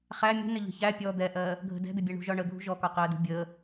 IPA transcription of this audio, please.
χ æ mʲ ə̤ n ɪ ʎ ə̤ ç æ pʲ ɔ d̪ ɛ ʔ ɜː | ɡʱ ə̤ d ɛ̤ d̪ ɪ bʲ ɛ ɳ ṳ ʒ ɒ ɳ ə ɡʱ ṳ ʒ ɔ k ɒ q əː d ṳ bʲ əː

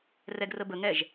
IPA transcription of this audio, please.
r ɛ ɡ r ə b ə ŋ ɛ ʒ

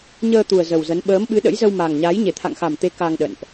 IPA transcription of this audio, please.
ɲ əː˧ t̪ u˨˩ ə̯ z ə˨˩ w z ə˨˦ n ɓ əː˨˦ m ɓ ɨ˨˦ ɗ ə̰˧˥ j z ə˧ w m a˨˩ ŋ ɲ a˨˦ j ɲ e˧˩ t̪ʰ a̰˧˨ ŋ x a˨˩ m t̪ e˨˦ k a˧ ŋ ɗ ə̰˧˨ n ʔ

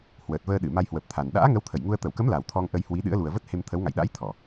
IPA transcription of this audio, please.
h w əː˨˩ t̚ v əː˧ ɗ ɨ˧˩ m a˧ j h w ə˨˩ p̚ t̪ʰ a˨˩ n ɗ a̰ː˧˥ ŋ ə˨˦ w t̪ʰ ə˧˩ j ŋ u˧ ə̯ t̪ ə˧˩ w k ə˨˦ m l a˨˩ w t̪ʰ ɔ˧ ŋ ʔ ə˧ j h w i˨˦ ɗ ɨ̰˧˥ ə̯ l u˨˩ ə̯ v ə˦˥ t̚ h e˧ m t̪ʰ ə˨˦ w ŋ a̰˧˨ j ɗ a̰˧˥ j t̪ʰ ɔ˧˩˨

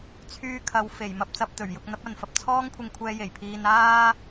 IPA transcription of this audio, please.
t͡sʰ yː˧ kʰ ɐ˨˧ w f e˨˩ j m ɐ˧ p̚ t͡s ɐ˧ p̚ t̪ ɵ˨˩ ɥ j ʊ˧ k̚ n̪ ɐ˨˥ p̚ ɐ˨ n f ɐ˧ p̚ t͡sʰ ɔː˥ ŋ kʷʰ ɪ˧ ŋ kʷʰ ɛː˧ j e˨˩ j pʰ iː˧ n aː˥

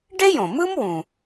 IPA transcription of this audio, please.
ɖ e˥ j õ˩ m ɯ˥ m w ũ˩

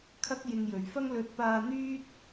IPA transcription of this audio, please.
kʰ ɐ˥ k̚ j ɪ˧ ŋ j ɵ˨ ɥ f ɐ˥ ŋ l ɵ˧ t̚ p aː˧ n̪ yː˥ t̚

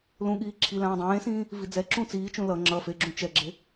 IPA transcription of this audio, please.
l ũ ɠ iː ǁʰ i l ãː dˤ ẽː s ĩː | v i d͡z ɛ ǁ ũ t͡s iː t͡ʃ ũ l ʌ ŋ͡ǁ ʌ f e ɡ͡ǁ ũ t͡ʃ ɛ ɡ͡ǁ e

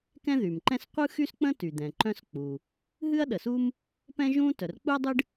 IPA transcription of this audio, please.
k ɛ̃˥ ð y˩ m ǃ ɛ̃˥ s qʷ ɯ˥ x y˥ s k͡p ə̃˥ t y˩ d̪ ɛ̃˩ ǃ œ̃˥ s k͡p u˩ | ɦ ɨ˥ ɐ̯ ɗ ə˩ s u˥ m | p ɛ̃˥ ʒ ũ˥ t œ˩ r k͡p u˥ ɐ̯ dˤ ɨ˥ ɖ

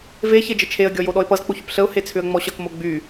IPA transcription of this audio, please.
v e ç e d͡ʒ ə t͡ʃʰ e ə̯ ɡʲ ɔ j o ɗ ɔ ɪ̯ p ʌ z k͡p o ç ʏ p ɬ ə ʊ̯ h e t͡sʰ ʏ ə̯ ŋ͡m ɔ ɕ ʌ k m o ɡ͡b y

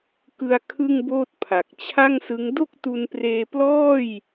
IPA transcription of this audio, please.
k ɯ˧ a̯ kʰ ɯ˥˩ ŋ b oː˥˩ t̚ pʰ a˨˩ k̚ t͡ɕʰ a˥˩ ŋ s ɯ˦˥ ŋ d o˥˩ k̚ t u˧ n p r eː˧ p l ɔː˥˩ j

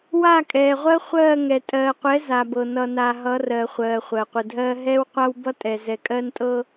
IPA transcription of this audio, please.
w a˦˨ kʼ ɛː˨ ʁʷ ɜ˦ χʷ ɜː˦˨ ŋ ɛ˨ tʼ ɜː˨ qʷ ɛ˨˦ z a˨ b ɤ˨ n ʌ˨ n a˨ ɦ ʌ˨˦ r ɜ˨ χʷ ɜː˨ χʷ ɜ˨ qʷ ɘ˨ dʱ ɜː˦ ɦ ɛː˦ w qʷ a˦ w b ʌ˦ tʼ ɛ˨ z ɛ˨ kʼ ɜ˦ n tʼ ɤ˦

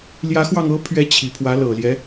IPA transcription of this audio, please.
l j ä˧˥ x w ɑ˧ ŋ ɤ˧˥ pʰ ɥ ɛ˧˥ t͡ɕʰ i˨˩ pʰ w ä˧˥ l ɤ˨˩ l j ɛ˦

